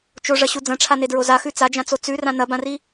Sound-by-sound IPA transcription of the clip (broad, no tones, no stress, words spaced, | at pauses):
t͡ʃoʐɐɕu d͡zɐ̃ʈ͡ʂʰanedɹo zaxʉ t͡sad͡ʒãt͡so t͡sʉrã nɐbãri